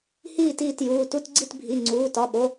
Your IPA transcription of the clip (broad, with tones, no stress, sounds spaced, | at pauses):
h iː˦˨ t iː˦˨ t j uː˩˧˩ t u˦˨ t ɡ͡ǀ i˦˨ t bʱ i˩˧˩ ŋ͡ǀ uː˩˧˩ t ɒ˩˧˩ ɓ o˩˧˩